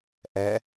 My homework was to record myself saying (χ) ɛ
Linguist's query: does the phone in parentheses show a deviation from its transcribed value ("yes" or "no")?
yes